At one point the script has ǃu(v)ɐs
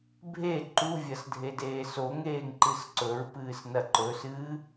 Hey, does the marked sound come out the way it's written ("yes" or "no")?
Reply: no